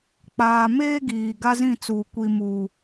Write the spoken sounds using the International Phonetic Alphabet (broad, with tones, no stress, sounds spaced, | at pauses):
k͡p aː˨ m eː˦ ɡ iː˨ ɡ a˦ z ĩ˦˨ t͡s uː˨ kʷ i˦ m uː˦